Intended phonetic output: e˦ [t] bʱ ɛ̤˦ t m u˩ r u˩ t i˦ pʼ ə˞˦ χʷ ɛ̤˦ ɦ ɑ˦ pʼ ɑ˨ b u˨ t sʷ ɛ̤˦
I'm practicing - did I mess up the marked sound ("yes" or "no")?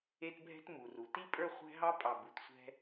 no